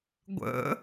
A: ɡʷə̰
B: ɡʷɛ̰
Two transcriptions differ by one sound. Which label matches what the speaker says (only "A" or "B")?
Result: A